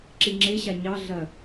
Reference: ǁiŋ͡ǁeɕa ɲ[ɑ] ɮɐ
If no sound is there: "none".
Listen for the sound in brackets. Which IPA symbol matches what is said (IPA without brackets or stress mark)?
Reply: ɑ